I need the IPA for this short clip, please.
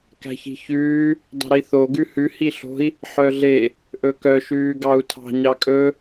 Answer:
k æ̤ ç i̤ ç ʉː | dˤ i̤ ɾ i θ o ɡ ʉ h ʉ h i ɬ o̤ i̯ | ħ œ ɮ e | ʔ ɵ k œ ʃ ʉː ɡ ɑ u̯ tʰ ɑ̤ ɲ ɑ kʼ ɵ

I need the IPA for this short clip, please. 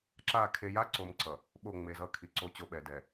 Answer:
ǁ a˦˨ kʰ e˨ j a˦ ǀ o˨ m ǀ ʌ˨ | ɓ o˦˨ ŋ͡m e˨ z ʌ˦ kʰ i˨ ǀ o˦ t͡ɕ o˦ ɓ ɛ˨ d ɛ˨

